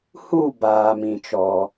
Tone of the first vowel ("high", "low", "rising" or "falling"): falling